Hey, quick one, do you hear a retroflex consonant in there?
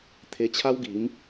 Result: no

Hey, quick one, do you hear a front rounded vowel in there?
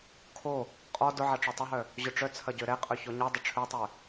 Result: yes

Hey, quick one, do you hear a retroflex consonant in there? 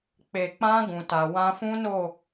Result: no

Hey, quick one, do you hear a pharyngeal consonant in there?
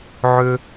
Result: yes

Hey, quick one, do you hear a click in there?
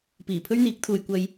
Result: no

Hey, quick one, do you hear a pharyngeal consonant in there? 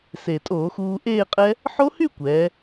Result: yes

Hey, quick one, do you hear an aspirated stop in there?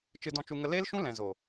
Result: no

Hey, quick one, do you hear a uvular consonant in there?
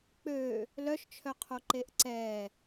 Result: yes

